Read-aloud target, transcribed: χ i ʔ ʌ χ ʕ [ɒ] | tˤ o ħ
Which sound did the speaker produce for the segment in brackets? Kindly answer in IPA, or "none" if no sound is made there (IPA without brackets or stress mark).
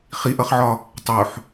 ɒ